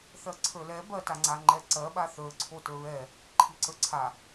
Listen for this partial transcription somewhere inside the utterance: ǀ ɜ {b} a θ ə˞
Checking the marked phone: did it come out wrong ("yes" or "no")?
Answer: yes